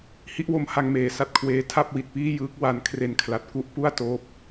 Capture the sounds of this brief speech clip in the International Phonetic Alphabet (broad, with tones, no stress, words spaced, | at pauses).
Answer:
hi˦˥ʔwo˦˥m ha˧ŋmeː˨˩ sa˦˥t̚kʰweː˦˥ tʰa˥˩p̚wi˨˩t̚piː˥˩jɯː˦˥k̚ wa˦˥n kʰre˧nkʰla˨˩t̚ku˦˥ʔ pu˥˩a̯ toː˦˥p̚